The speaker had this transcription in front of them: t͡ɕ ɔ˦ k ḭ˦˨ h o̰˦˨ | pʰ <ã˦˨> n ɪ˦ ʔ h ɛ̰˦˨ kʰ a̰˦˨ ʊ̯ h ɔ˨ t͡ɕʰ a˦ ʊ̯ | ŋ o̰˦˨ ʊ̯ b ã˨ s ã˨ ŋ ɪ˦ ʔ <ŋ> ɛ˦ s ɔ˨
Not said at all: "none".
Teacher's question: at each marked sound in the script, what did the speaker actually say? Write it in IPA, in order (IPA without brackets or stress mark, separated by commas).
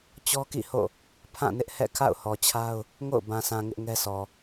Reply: ã˦˨, ŋ